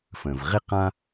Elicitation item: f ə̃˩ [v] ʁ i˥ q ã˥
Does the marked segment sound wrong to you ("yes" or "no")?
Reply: no